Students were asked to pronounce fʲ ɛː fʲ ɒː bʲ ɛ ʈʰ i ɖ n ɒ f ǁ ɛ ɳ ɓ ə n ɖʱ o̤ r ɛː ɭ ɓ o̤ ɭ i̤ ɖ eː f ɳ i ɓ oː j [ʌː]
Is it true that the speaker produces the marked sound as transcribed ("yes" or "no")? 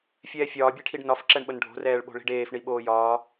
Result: no